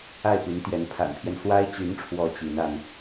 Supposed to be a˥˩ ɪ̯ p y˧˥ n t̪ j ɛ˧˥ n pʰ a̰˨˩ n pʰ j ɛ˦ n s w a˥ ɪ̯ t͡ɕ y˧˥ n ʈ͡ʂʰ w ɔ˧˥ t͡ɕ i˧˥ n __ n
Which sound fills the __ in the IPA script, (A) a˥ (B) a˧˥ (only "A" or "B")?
A